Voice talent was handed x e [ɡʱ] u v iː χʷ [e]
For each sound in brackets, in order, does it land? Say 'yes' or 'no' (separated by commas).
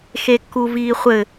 no, no